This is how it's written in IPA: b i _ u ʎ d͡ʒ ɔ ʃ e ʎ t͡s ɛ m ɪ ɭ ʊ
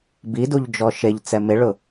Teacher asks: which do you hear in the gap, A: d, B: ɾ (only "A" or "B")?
A